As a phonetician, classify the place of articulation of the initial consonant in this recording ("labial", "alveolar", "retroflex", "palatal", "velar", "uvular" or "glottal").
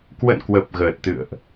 velar